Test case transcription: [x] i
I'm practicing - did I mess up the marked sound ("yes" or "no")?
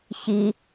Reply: yes